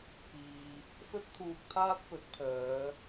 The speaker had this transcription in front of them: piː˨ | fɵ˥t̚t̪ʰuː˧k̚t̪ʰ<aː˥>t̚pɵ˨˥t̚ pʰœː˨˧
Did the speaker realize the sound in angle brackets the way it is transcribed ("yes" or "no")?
yes